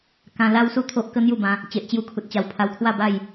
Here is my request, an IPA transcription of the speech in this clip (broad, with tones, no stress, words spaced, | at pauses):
kã˧la˦wsu˥˧t̪ʰo˦ʔ kə˦n̪ju˥˧bã˧ | t͡ɕe˨ʔt͡ɕju˧kʰu˨t̚t͡ɕa˨˩w pʰa˧wkʰwa˥˧ba˥˧j